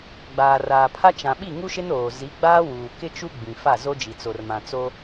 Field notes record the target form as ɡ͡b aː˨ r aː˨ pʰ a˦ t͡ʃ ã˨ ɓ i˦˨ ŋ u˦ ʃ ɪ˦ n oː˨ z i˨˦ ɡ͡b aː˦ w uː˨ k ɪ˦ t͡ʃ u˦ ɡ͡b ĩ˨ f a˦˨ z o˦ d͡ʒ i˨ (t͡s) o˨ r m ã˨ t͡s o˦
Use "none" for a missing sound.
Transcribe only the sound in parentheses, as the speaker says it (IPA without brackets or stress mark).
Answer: t͡s